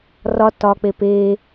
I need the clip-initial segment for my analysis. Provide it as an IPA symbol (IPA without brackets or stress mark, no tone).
r